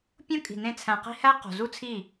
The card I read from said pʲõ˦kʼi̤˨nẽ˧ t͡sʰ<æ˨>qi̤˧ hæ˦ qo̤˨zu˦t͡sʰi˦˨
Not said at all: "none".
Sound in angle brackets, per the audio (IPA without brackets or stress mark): æ̃˨